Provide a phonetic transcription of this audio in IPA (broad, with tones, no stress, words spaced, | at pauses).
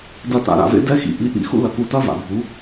dɐ˦˨ta̰˧ ɾa̰˨vḛ˦ dɛ˦xḭ˧ ʔi˧ʔḭ˦ xṵ˦lɐ˧ku˧tɐ˦ va̰˨bʱu˨˦